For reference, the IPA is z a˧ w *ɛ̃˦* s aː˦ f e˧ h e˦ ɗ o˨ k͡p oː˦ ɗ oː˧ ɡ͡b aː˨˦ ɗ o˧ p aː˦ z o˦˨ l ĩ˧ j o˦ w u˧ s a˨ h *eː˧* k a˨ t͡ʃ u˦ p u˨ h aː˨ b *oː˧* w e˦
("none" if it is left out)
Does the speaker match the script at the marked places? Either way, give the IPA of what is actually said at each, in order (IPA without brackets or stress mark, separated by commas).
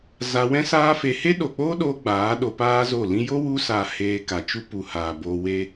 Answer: ɛ̃˦, eː˧, oː˧